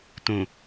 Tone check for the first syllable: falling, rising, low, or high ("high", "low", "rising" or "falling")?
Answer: low